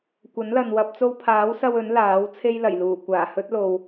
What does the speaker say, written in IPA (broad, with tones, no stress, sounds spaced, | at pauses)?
kʷ ɐ˨˥ n l ɐ˨ n w ɐ˧ p̚ t͡s o˧ w pʰ aː˨˥ w s ɐ˧ w ɵ˨˥ n l aː˨˥ w t͡sʰ e˥ j l ɐ˨˩ j l uː˨˩ kʷ aː˨˩ h ɵ˥ t̚ l o˨ w